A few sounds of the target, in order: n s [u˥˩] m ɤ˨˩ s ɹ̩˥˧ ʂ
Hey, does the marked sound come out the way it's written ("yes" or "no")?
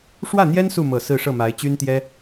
yes